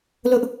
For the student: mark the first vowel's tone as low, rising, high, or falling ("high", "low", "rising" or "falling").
high